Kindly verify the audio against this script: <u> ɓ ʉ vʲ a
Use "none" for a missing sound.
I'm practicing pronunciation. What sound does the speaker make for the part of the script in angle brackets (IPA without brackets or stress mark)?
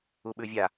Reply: u